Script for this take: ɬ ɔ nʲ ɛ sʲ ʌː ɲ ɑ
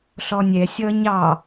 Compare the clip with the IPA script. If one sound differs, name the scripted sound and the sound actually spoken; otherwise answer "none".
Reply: none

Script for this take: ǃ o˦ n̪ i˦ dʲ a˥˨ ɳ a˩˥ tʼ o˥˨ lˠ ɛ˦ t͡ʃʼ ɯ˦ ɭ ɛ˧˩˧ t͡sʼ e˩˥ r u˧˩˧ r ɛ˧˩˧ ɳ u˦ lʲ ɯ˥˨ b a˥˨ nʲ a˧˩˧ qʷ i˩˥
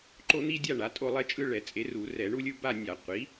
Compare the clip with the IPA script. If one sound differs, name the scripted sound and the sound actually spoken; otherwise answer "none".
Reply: none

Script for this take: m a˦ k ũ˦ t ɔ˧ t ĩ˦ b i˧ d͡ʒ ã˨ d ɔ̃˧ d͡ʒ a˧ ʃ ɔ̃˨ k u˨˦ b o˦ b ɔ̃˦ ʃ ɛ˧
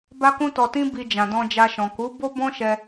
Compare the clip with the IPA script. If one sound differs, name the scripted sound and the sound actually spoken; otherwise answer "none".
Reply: m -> b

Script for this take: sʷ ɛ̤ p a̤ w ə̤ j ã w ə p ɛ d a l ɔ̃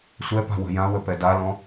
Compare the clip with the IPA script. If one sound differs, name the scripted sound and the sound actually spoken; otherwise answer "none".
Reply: ɛ̤ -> ɛ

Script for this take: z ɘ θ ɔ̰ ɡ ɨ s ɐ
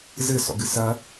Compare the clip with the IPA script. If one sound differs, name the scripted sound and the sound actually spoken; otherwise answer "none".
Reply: θ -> s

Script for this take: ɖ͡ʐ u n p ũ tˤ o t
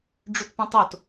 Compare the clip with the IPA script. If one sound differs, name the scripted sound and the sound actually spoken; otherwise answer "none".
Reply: n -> t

